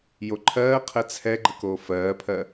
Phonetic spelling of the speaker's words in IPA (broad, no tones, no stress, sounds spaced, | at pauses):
j o ǃʰ ɜː qʰ ɛ t͡sʰ ɛ ɡ͡ǃ ə k oː f ɜː pʰ ɜ